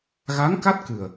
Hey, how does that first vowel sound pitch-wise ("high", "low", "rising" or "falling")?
rising